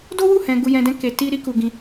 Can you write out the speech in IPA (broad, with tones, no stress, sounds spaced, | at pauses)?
d o˦ w u˦˨ h ɛ̃˧ ɡ u˧ j ɛ̃˧ d ɛ̃˦ k e˧ t i˦ ɾ i˦ k u˧ ɡ ĩ˧